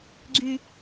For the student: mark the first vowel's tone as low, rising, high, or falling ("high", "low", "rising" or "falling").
high